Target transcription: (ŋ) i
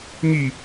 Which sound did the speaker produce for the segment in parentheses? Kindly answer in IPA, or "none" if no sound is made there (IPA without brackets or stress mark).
ŋ